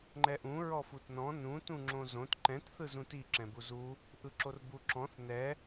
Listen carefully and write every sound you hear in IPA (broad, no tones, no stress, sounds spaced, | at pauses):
ŋ͡ǃ ɛ ʔ ũ ɹ ɔ f u t n ɔ̃ n ũ t ũ ŋ͡ǁ õ z õ t ǃ ɛ̃ t θ ɯ z ũ t i ǁ ɛ̃ b u z u | ʔ ɯ ǁ o r b u ǁ ɔ̃ θ n ɛ